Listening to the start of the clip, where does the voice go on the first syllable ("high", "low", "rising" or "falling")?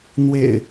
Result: low